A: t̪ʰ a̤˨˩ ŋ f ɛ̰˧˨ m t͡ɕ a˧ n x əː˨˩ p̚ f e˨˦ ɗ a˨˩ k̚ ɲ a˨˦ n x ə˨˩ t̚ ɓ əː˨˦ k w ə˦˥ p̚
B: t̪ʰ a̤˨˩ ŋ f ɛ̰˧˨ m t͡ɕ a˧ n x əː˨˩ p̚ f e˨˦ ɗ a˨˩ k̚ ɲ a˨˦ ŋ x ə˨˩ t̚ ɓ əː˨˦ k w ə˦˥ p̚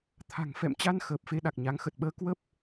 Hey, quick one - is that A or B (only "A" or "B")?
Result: B